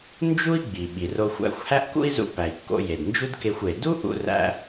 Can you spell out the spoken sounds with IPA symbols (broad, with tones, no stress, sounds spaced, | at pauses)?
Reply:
n d͡ʒ u˥ i̯ ɡ͡b i˩ ɓ i˩ r o˧ xʷ æ̰˧ xʷ h æ˥ ʔ k ṵ˥ i̯ z ṵ˧ p æ˩ i̯ kː o̰˧ j e˩ d n d͡ʒ u˥ d k e˧ xʷ e˩ d u˥ ʔ ṵ˧ r æ̰˧